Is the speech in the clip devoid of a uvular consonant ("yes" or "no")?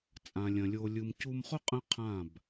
no